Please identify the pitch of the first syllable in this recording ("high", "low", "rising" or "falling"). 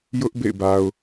high